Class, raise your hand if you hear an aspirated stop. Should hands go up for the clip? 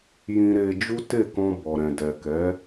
no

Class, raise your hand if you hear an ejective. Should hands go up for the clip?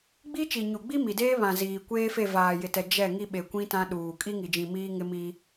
yes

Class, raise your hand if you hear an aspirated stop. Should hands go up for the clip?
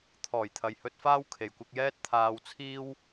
yes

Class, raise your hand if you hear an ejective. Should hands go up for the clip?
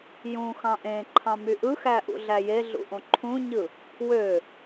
no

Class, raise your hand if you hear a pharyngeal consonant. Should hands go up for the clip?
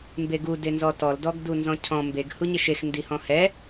no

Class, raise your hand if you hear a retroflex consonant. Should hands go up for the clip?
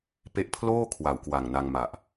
no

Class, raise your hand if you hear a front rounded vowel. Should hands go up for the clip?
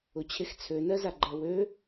yes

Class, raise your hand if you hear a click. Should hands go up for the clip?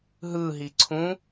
yes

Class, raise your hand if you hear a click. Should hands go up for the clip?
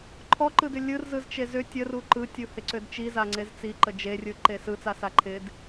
yes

